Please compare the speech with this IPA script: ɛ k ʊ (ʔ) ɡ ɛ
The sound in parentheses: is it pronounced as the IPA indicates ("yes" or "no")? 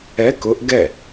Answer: yes